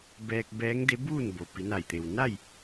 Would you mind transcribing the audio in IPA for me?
b ɛː˧ k̚ b ɛː˧˥ ŋ d e˧˥ b uː˥˨ n b o˩ p i˩˧ n a˧˩ j t̪ e˩ w n a˥˨ j

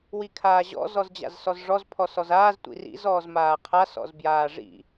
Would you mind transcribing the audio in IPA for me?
w i kʰ aː ʑ ɔ̰ z ɔ z d͡ʑ a̰ z s ɔ z ʐ ɔ z pʰ ɔ s ɔ z aː z tʷ ḭ r ḭ z ɔː z m aː qʰ a s ɔ̰ z b j aː ʐ ḭ

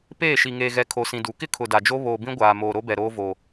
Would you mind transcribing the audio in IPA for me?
p eː˦˨ ʃ i˨ ŋ eː˨ ɣ ɛ˨ kʰ o˨ s ĩ˨ d u˨˦ k ɪ˦ kʰ ʊ˨ d a˨ d͡ʒ o˦ β oː˨ b ĩ˦ ɡʷ aː˨ m oː˨ ɾ o˦ b ɛ˨ ɾ oː˦ v oː˨

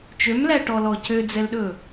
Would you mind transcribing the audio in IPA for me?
t͡ʃ ø m l æ ʈ ɔ l ɔ c ø d͡z ɛ l ɗ ɵ

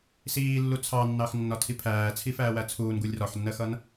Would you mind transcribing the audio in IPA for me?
s iː lː u t͡sʰ ɑ nː ɑ x nː ɒ tʰ i pʰ æː t͡sʰ i f æː w æ t͡sʰ uː n ɡ u lʲ r ɒ ħ nː ɜ x ʌ n

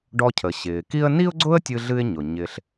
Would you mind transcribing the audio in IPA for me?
ɖ ɔ˧ cʰ ə˩ ɕ ɪː˩ k i˥ ə̯ n i˥ ʊ̯ ɡ͡ǀ ʊ˥ ə̯ tʲ ɨ˧ ɮ ɨ˧ ɪ̯ ɲ ʊ˩ ɲ ɪ˧ ɬ

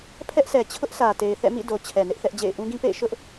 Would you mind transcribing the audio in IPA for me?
pʰ ɛ˦ ʔ s ɛ˨ t͡ɕʰ ʊ˦ ʔ s ä˨ t e˨ ɪ̯ θ ɛ̰˦˨ m ḭ˦˨ d o˨ t͡ɕʰ ɛ˨ n ɪ˦ ʔ θ ɛ˦ ʔ d͡ʑ ḛ˦˨ ɪ̯ ʔ ũ˦ ɡ ĩ˦ p ḛ˦˨ ɪ̯ ʃ ʊ˦ ʔ

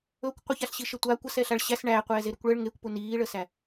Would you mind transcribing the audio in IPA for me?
ɵ kʷ qʷ ə ç a ɬ ɕ i ʃ ə tʷ a kʷ ə s ɛ ɬ a ɭ ɕ æ s ɳ æ qʷ ɛː z e ɾ u kʷ ɭ ə ɭ ŋ e kʷ p u n iː ɭ ə s æ

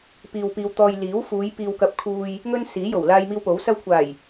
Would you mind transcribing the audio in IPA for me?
p iː˧ w p iː˧ w t̪ ɔː˧ j l iː˨˥ w f uː˨˧ j p iː˨ w k ɐ˨˥ p̚ kʰ uː˨ j | ŋ ɵ˥ n s iː˨˥ j o˨˩ w l aː˧ j m iː˧ w p o˨˥ w s ɐ˧ w kʷʰ aː˨˩ j

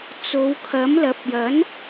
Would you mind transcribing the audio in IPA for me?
t͡s o˨˧ w kʰ ɐ˨˥ m l ɐ˨˥ p̚ j ɐ˨˥ n

